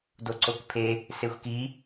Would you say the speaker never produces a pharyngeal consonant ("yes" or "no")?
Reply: yes